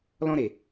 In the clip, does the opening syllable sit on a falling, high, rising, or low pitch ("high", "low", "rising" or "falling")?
high